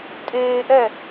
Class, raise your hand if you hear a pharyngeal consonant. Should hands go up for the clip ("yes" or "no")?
no